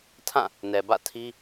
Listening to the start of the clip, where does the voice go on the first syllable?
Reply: falling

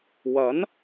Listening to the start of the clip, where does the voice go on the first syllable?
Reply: rising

